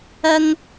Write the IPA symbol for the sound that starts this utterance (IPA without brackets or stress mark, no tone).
ɐ